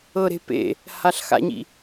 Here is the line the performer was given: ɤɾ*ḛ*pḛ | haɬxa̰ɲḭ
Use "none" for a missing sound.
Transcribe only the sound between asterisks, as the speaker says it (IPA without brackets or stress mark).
e̤